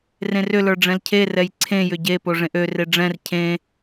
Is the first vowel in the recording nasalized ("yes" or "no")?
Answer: yes